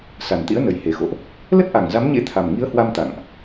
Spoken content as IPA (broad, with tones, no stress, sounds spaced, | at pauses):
s a˨˩ n t̪ ḭ˧˥ ə̯ n ə˨˩ j h e˨˩ x o̰˧˨ ʔ | l ə˦˥ t̚ ʔ a˨˩ ŋ z a˨˦ m ɲ ḛ˧˥ t̪ʰ a˨˩ m ŋ i˨˦ ə̯ h w a˧ m t̪ a̰˧˨ ŋ ʔ